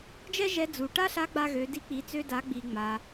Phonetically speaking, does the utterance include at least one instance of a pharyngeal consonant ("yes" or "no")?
no